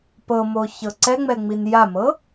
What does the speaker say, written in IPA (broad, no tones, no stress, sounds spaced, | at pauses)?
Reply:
p ɤ m o ç ɤ ǀ ɛ ŋ͡m ɛ ŋ͡m i n j a m ɤ